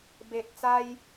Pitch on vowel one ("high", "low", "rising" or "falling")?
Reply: low